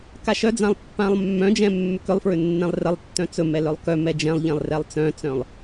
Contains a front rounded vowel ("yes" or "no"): yes